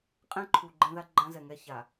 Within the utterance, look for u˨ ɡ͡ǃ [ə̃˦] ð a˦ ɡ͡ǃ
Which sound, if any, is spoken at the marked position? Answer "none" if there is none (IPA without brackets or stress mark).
ɛ̃˦